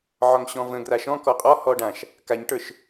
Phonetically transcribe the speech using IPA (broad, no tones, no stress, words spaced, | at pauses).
ʕɒŋɕɔ̃və̃ɡra ʃɔ̃kɔ qʼɔhɔ ɖãʃ | kaɲʈə˞ʃ